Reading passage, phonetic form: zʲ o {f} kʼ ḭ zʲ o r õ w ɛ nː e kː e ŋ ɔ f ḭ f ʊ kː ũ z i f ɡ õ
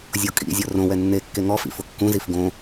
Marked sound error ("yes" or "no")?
yes